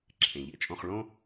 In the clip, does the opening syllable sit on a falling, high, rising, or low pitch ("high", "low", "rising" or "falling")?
low